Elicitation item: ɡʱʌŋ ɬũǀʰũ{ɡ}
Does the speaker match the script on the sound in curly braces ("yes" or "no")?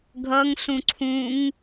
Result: no